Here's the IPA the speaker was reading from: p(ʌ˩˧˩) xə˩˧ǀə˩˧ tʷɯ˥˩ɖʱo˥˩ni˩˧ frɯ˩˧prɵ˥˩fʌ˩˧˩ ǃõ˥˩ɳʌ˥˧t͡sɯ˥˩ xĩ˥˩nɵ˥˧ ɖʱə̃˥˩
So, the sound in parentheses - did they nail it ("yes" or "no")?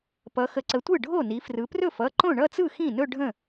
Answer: no